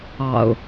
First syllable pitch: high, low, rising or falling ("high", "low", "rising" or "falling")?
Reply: low